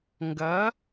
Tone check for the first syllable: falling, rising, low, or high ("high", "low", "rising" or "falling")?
rising